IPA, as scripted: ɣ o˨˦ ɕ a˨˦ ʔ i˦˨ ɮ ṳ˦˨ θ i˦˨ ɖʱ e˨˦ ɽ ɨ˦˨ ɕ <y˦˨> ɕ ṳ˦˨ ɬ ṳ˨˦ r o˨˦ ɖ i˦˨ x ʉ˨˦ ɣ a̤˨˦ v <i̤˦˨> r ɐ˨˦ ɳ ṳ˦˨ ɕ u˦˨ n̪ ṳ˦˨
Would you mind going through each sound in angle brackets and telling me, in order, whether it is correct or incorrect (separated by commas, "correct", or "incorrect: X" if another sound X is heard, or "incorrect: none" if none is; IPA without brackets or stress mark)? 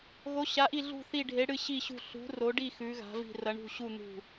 incorrect: i˦˨, correct